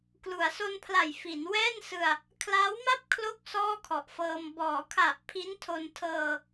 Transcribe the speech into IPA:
k l u˩˦ a̯ s o˧ n pʰ l a˨˩ j f i˩˦ n w ɛː˥˩ n s ɯ˧ a̯ | kʰ l a˦˥ w m a˥˩ p̚ kʰ l o˥˩ k̚ s ɔː˥˩ kʰ ɔ˨˩ ʔ f ɤː˧ m b ɔː˩˦ kʰ a˨˩ ʔ pʰ i˦˥ n tʰ o˧ n tʰ ɤː˧

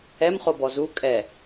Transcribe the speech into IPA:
ɛ m χ o b ɔ z u kʼ ɛ

